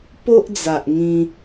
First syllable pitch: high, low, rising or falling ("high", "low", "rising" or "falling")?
high